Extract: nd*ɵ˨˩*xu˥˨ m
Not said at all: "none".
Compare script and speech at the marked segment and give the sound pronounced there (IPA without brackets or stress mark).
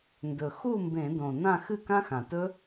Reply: ɵ˨˩